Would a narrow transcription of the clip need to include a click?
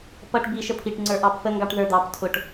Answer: yes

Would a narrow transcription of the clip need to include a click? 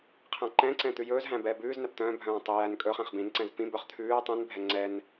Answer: yes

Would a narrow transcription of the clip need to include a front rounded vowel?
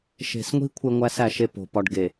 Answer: no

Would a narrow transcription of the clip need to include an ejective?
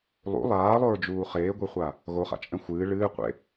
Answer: yes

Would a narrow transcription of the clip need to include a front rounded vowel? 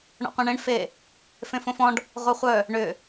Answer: yes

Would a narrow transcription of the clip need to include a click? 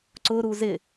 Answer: yes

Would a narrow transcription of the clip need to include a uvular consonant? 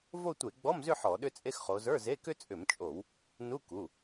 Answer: yes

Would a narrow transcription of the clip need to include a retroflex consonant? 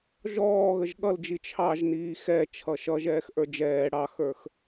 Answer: yes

